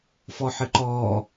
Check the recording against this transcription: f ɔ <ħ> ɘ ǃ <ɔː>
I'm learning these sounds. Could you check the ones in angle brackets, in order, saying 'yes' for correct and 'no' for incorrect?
yes, yes

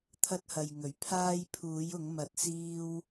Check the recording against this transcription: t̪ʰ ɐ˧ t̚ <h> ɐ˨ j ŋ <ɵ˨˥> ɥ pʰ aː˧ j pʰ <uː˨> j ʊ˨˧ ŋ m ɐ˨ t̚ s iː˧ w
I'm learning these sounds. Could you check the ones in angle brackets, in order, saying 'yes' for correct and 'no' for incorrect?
yes, yes, no

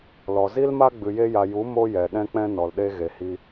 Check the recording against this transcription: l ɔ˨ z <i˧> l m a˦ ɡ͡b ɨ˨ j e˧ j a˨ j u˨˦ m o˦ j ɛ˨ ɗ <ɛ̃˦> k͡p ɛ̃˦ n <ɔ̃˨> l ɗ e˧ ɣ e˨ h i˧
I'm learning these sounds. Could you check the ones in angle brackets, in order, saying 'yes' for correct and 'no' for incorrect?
no, yes, no

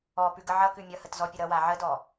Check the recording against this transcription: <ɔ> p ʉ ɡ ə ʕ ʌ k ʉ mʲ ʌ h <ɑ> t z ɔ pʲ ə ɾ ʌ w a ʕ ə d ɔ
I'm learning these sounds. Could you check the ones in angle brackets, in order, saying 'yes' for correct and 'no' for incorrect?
yes, no

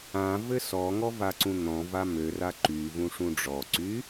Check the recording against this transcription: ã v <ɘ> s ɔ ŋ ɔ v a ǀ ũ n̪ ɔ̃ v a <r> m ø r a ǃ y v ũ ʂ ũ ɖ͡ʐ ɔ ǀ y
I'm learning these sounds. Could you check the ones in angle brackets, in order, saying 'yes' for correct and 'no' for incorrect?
yes, no

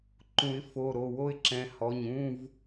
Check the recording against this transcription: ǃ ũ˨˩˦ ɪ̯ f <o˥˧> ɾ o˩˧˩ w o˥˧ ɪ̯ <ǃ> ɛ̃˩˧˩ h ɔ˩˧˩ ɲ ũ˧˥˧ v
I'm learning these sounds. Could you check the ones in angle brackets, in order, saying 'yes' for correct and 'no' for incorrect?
no, no

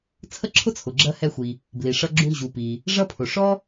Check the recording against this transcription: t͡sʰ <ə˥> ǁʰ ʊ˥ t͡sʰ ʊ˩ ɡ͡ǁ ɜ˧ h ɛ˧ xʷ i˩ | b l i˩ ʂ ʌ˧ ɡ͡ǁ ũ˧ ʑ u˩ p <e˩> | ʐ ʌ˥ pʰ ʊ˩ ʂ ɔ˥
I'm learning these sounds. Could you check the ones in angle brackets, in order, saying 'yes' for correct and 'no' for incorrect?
yes, no

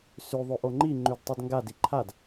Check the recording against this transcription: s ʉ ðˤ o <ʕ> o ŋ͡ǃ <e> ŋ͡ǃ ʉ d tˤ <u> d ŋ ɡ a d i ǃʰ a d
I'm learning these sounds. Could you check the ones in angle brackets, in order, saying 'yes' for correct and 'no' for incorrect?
no, no, no

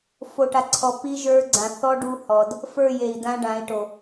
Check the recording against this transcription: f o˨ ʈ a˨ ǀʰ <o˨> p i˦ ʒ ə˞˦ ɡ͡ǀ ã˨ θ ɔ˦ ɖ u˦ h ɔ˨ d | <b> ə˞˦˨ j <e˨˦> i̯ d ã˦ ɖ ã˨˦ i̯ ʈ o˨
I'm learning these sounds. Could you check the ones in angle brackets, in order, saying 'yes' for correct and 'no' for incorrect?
no, no, no

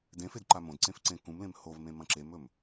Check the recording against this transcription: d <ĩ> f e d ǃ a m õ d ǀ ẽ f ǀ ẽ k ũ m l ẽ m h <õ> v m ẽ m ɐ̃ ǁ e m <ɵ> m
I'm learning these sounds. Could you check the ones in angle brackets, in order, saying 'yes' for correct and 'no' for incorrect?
no, no, yes

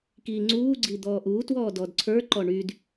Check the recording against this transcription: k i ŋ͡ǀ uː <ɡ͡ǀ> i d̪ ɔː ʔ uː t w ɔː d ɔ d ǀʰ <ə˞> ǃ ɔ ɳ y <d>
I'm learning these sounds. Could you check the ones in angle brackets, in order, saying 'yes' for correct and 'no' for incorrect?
yes, yes, yes

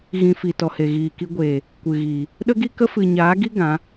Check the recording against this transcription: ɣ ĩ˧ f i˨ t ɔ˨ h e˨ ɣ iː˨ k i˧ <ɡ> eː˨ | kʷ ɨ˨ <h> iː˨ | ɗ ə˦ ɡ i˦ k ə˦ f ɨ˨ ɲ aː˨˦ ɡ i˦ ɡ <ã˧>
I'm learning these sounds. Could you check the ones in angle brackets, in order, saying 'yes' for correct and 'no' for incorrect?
no, no, no

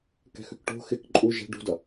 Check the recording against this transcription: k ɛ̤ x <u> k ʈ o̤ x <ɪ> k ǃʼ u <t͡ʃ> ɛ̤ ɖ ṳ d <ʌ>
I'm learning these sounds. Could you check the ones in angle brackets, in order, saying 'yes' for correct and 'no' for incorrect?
no, yes, no, yes

